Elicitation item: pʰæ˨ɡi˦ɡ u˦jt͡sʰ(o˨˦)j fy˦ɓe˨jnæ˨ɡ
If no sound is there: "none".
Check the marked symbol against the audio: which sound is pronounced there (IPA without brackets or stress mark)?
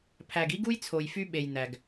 o˨